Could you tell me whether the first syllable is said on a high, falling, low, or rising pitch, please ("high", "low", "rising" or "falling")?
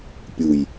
low